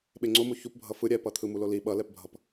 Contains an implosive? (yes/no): yes